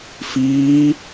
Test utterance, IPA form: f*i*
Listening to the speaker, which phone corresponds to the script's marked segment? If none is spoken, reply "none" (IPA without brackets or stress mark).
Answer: iː